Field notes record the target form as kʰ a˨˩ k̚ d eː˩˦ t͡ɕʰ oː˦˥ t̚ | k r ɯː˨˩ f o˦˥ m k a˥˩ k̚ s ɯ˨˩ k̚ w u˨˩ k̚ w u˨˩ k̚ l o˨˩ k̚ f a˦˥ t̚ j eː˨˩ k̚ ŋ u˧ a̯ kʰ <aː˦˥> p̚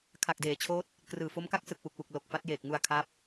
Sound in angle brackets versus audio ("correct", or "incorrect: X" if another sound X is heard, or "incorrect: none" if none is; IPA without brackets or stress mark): correct